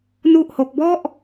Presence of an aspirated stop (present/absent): absent